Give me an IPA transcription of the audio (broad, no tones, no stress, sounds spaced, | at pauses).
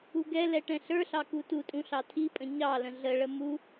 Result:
u ɡ ɛ l ɛ ʈ ɛ̃ ɬ ə˞ ɬ ɑ k u t u tʼ ũ ɬ ɑ tʰ i pʼ ə̃ ɲ ɑ l ə̃ ɮ ə ɭ ə m u